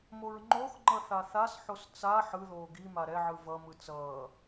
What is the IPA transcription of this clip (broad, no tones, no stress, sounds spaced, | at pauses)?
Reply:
m o ɹ ŋ͡ǃ o x ŋ͡ǃ ʌ θ a θ a s ħ o s t͡s a ħ ɯ ð oː ɡ i m a ɾ ɛ ʕ ɯ v ʌ m ɯ t͡s ʌː